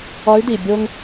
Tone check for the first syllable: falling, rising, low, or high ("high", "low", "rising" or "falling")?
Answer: rising